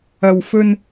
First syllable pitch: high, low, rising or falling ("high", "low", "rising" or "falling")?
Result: low